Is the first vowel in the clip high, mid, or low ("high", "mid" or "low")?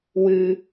high